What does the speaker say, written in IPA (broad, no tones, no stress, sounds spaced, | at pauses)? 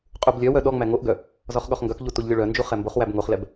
qʼ u b lʲ œ w œ ɗ ɔ ŋ͡m æ ŋ o ʔ ɡ œ | z ɔ χ ɠ ɔ χ ŋ ɡ œ k ʎ u t u ʎ lʲ o ɭ œ n d͡ʒ u χ ɛ m b o χ w æ b ŋ o χ l ɛ b